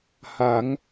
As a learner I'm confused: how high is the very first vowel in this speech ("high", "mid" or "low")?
low